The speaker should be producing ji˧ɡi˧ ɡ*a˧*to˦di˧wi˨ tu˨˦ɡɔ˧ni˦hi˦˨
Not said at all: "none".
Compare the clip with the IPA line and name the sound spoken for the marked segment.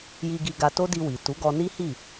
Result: a˧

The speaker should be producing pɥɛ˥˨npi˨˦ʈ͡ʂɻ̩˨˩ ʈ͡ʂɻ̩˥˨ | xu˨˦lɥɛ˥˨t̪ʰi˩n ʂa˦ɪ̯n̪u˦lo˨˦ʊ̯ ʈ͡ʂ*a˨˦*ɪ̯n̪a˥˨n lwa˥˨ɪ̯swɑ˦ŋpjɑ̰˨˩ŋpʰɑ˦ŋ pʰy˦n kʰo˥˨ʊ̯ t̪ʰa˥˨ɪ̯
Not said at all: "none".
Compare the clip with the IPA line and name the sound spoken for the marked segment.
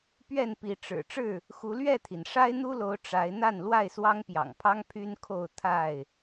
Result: a˨˦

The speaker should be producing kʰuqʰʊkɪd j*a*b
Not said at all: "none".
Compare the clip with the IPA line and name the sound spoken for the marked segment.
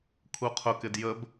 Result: ə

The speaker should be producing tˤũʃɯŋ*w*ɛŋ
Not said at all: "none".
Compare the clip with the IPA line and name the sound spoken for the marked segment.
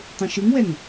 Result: w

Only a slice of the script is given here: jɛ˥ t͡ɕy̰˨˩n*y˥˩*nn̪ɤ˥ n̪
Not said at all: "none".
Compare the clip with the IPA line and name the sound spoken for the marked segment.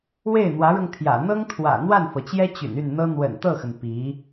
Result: y˥˩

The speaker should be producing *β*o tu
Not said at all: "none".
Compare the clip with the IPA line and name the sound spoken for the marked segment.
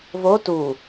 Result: β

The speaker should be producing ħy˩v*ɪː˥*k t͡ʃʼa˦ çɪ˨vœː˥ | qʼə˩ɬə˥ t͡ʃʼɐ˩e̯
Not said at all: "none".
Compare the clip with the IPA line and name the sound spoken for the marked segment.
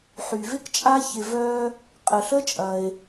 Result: ɪ˥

